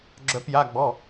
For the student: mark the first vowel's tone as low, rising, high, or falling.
rising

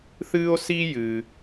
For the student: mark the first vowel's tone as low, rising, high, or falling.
high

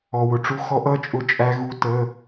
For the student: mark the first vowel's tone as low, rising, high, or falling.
low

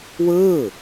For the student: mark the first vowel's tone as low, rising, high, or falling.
falling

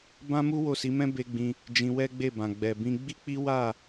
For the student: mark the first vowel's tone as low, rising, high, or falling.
high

